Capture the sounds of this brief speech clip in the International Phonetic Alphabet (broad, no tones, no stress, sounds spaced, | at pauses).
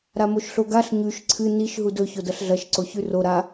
ɾ a m o ʃ ɬ o ɡ a ɬ ɲ ʉ ʃ ǀʰ ɨ n i ʃ ɦ u d ɵ ç o d ɐ ɬ ɮ ɐ ʃ ǀ o ç ʉ r o ɾ a